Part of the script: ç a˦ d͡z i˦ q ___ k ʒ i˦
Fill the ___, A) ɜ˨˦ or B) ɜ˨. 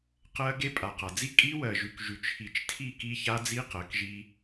A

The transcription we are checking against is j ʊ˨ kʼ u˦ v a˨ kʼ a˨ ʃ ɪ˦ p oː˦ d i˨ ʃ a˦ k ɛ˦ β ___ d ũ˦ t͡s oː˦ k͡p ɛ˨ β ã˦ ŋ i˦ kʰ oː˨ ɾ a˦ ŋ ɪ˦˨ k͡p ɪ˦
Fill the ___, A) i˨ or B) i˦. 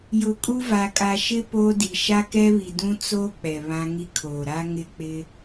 A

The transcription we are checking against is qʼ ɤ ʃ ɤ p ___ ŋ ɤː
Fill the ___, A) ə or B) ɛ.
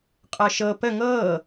A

